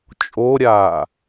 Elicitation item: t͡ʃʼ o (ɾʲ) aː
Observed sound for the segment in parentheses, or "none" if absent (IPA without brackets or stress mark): ɾʲ